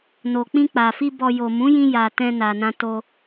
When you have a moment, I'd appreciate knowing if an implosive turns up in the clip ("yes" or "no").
no